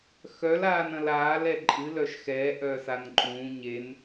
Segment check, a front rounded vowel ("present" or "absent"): present